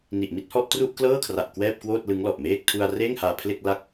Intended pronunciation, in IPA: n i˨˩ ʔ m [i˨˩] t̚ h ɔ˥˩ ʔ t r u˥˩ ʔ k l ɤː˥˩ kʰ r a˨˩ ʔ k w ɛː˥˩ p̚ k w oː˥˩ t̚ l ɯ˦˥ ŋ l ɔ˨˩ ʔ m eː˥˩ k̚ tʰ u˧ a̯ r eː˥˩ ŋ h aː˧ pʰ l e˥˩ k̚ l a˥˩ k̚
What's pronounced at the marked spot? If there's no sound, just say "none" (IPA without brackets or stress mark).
i˥˩